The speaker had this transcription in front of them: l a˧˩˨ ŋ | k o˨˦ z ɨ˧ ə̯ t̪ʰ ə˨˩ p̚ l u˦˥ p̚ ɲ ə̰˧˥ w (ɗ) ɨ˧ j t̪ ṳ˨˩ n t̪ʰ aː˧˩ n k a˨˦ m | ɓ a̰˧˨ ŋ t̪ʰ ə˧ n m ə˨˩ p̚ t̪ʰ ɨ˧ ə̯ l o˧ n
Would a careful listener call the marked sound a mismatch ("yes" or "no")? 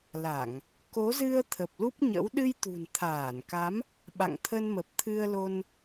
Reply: no